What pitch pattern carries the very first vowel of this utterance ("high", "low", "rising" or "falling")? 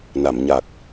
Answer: low